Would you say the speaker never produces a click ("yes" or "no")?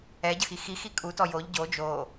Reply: yes